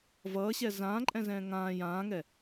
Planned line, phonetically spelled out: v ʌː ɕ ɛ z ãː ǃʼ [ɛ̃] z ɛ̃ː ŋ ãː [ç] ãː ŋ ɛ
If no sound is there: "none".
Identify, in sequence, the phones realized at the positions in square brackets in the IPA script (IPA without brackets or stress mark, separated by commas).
ɛ̃, j